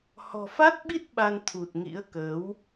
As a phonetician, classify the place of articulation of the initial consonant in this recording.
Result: glottal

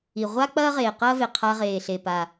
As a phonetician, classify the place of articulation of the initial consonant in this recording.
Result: uvular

